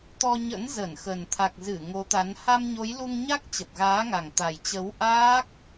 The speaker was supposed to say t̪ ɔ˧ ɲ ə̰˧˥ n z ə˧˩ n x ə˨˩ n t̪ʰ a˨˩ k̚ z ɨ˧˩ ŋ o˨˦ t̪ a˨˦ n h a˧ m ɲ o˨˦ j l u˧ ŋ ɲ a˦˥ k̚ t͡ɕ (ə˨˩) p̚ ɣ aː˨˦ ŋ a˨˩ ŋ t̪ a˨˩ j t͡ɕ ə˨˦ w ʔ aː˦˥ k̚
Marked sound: correct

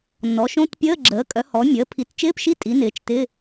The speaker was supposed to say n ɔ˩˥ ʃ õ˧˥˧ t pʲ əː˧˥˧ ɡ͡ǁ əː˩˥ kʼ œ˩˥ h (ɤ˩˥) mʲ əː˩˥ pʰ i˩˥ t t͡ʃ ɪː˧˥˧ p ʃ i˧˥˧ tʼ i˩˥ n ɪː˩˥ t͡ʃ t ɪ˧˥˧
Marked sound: incorrect: ɔ˩˥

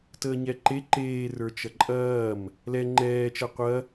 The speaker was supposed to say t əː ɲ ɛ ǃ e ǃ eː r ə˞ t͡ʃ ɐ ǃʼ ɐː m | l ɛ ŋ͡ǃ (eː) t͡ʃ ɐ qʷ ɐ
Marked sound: incorrect: ɛː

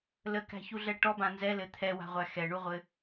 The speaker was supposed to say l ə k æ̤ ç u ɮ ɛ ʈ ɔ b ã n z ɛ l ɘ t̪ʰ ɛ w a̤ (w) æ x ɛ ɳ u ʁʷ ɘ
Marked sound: incorrect: ʁʷ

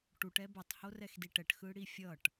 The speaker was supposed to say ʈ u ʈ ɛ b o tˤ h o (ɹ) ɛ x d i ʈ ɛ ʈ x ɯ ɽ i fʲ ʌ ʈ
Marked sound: incorrect: r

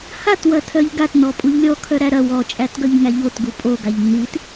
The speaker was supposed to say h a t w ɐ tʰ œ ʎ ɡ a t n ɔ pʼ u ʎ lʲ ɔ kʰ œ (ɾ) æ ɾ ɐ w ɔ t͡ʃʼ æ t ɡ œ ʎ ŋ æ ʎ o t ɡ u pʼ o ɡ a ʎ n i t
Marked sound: correct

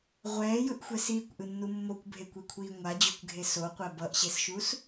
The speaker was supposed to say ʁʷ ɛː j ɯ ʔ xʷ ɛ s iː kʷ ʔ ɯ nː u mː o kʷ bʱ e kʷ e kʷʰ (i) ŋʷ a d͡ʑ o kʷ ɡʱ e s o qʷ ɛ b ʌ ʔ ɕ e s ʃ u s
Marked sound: incorrect: iː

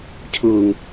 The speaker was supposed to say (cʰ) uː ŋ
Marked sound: correct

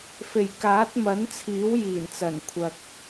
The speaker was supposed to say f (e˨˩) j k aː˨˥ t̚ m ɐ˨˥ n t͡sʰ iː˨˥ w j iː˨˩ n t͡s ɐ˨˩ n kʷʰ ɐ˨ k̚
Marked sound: correct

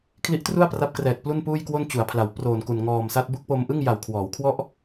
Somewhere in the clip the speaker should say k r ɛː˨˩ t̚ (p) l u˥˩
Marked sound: correct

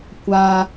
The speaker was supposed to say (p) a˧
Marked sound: incorrect: kʷ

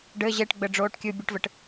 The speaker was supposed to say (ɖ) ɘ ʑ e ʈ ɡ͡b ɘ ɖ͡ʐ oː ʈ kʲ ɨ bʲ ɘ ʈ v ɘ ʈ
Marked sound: correct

